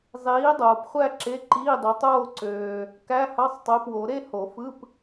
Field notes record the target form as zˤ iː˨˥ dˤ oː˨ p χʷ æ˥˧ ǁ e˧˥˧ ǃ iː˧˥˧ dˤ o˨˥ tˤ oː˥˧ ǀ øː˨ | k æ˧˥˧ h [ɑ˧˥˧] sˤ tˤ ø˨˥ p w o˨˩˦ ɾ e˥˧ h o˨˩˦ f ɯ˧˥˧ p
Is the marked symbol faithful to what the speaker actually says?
yes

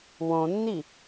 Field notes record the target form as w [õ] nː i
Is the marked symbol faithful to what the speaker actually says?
yes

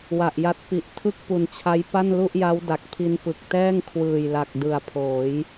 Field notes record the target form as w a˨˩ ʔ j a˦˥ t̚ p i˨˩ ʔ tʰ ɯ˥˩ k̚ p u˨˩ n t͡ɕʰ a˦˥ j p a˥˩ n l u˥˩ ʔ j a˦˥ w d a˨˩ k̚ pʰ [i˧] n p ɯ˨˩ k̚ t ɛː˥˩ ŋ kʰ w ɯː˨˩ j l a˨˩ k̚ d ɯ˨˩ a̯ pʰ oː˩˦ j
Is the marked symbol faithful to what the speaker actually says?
yes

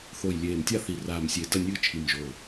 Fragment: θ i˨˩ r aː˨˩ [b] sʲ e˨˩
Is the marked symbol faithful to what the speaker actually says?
no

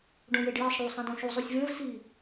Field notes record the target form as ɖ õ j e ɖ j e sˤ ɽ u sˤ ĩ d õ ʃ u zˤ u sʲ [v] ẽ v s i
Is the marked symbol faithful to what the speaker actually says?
yes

